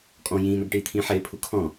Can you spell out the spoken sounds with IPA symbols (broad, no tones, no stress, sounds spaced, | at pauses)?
kʼ ɔ̃ j ĩː n ɔ ɡ ʈ iː t̪ʰ ĩː ħ ɪː pʰ u kʰ ɔ̃